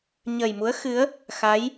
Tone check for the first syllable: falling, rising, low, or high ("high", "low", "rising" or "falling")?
low